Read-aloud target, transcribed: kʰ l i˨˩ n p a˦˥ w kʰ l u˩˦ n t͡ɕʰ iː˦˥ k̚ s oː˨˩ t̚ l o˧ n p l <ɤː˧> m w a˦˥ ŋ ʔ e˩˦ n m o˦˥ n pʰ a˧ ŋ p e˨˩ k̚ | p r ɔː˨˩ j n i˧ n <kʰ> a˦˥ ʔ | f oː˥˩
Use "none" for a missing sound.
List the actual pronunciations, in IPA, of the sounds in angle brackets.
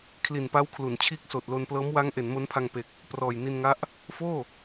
ɤː˦˥, ŋ

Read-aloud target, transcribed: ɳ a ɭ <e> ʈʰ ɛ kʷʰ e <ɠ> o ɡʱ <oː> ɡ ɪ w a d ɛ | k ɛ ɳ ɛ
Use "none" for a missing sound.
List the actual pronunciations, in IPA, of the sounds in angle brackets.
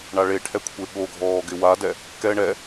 e, ɠ, ɔː

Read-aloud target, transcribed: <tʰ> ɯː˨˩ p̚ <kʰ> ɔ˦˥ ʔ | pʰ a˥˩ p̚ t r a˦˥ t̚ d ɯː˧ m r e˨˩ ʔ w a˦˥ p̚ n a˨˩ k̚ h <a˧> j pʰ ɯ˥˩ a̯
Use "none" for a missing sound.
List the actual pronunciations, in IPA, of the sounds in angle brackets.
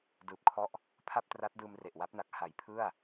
d, kʰ, a˨˩

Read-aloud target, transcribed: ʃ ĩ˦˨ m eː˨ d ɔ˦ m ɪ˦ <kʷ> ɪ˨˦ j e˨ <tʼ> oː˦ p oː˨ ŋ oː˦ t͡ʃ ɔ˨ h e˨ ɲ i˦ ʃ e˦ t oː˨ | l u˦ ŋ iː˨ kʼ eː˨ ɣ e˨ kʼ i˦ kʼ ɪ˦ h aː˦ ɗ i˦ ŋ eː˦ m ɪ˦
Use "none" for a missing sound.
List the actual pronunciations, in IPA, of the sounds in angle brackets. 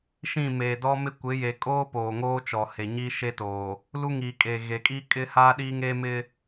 kʷ, kʼ

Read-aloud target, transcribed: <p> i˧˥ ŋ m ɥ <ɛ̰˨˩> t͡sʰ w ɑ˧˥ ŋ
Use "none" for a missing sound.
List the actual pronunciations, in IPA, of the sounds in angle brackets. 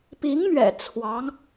p, ɛ̰˨˩

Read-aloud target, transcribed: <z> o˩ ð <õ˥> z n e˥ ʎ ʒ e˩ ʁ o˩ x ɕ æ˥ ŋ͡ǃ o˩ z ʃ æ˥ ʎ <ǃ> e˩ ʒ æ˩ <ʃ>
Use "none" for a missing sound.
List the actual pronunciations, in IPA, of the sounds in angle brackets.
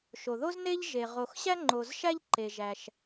ʃ, o˥, ǃ, ʃ

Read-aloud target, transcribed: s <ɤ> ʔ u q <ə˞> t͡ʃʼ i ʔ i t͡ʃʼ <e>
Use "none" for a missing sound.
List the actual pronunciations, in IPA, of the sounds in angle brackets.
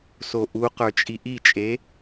o, ə˞, e

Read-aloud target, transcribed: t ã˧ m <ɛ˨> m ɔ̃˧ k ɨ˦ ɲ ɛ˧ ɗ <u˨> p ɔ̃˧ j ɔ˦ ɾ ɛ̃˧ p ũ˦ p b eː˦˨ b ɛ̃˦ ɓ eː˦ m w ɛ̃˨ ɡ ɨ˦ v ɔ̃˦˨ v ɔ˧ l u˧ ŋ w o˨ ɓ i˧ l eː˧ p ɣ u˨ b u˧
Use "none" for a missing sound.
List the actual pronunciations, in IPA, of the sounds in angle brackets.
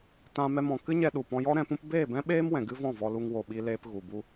ɛ˦, u˨

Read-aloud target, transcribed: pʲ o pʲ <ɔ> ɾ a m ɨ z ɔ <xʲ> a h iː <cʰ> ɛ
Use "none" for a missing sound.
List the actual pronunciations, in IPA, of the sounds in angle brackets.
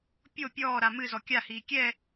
ɔː, kʲ, kʲ

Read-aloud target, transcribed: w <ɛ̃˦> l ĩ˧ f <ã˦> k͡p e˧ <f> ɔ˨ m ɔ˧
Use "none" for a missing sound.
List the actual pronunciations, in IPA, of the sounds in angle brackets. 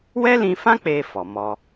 ɛ˦, ã˦, f

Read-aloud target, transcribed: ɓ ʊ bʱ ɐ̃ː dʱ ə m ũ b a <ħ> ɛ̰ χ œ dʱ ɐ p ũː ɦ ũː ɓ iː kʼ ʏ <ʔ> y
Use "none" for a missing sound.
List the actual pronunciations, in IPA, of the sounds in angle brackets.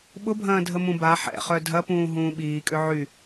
ħ, ʕ

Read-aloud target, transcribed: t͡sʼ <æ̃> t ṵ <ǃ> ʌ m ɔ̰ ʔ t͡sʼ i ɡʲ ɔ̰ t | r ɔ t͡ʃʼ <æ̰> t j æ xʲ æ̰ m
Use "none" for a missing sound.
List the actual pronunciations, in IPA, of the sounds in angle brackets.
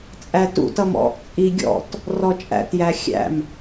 æ, t, æ̰

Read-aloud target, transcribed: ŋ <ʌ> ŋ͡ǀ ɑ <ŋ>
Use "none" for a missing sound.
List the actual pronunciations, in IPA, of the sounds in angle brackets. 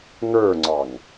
ə˞, ŋ

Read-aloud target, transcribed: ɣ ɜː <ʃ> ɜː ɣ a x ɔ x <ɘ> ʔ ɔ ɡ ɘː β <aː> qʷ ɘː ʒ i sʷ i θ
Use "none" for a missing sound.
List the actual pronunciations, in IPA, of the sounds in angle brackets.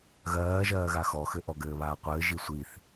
ʒ, ɘ, aː

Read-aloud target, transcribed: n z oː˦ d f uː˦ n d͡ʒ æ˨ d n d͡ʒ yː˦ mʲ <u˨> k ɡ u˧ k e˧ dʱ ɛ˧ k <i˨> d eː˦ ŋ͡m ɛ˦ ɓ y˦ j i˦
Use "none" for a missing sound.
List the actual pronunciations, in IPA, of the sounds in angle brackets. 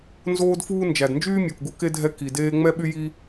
o˨, i˨

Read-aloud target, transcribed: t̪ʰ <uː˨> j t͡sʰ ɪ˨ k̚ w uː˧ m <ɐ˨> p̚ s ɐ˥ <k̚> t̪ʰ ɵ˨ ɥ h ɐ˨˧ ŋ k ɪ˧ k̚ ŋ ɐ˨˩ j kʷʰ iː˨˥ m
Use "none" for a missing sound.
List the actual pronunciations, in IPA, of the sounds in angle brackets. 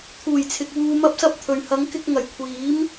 uː˨˩, ɐ˥, p̚

